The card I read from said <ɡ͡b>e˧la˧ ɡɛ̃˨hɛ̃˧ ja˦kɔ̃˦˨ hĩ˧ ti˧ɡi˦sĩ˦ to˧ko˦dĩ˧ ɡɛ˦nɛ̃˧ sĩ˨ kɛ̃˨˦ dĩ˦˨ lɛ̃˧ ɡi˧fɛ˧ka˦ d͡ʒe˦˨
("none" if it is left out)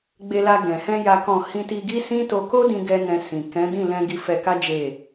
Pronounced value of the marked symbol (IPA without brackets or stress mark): ɡ͡b